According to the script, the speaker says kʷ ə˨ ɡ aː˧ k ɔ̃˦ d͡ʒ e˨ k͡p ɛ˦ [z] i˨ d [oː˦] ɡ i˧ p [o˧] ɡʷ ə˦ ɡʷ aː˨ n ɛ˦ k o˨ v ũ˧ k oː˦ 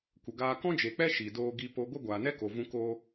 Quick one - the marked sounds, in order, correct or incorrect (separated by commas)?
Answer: incorrect, correct, correct